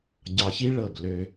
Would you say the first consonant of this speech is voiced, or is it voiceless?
voiced